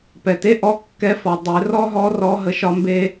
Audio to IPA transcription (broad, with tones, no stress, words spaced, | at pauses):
pɛ˩te˥ ʔɔ˧˥ kːɛ˧˥fɔ˩ dˤe˩˧rɔ˥ɦɔ˧˥ rɔ˧˥ ɦə˧ʃɒ˥mbe˥